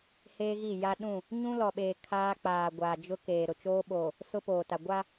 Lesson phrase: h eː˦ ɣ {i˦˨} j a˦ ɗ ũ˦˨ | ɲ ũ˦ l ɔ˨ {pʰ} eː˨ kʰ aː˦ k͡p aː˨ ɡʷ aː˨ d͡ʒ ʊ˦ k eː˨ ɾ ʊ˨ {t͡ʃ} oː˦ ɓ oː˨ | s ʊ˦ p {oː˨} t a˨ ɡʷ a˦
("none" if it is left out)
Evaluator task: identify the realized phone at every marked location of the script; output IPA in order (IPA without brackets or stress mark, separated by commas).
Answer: i˦˨, ɓ, t͡ʃ, oː˨